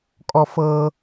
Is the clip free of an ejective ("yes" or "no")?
no